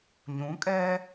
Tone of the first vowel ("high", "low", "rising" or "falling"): rising